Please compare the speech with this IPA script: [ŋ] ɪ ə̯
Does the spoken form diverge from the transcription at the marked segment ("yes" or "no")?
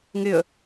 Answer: no